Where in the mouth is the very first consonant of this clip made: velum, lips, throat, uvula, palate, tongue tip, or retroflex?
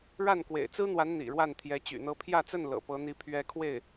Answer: retroflex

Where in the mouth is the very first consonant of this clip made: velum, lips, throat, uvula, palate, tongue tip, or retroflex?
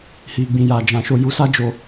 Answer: throat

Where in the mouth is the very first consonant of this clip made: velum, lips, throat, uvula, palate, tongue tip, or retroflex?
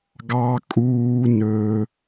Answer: velum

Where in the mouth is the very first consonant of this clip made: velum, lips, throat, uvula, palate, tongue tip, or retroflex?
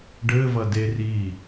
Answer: retroflex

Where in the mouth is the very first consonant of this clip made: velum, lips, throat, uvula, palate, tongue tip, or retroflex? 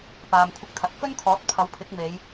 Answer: lips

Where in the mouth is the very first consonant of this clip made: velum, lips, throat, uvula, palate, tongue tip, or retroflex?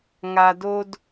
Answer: velum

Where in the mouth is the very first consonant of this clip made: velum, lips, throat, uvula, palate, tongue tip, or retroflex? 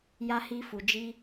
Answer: palate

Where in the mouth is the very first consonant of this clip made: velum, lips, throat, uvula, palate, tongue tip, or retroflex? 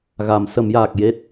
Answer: velum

